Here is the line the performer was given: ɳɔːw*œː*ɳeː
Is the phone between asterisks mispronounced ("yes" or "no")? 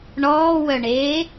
yes